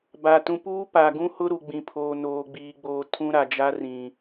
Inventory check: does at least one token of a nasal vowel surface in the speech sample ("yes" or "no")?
yes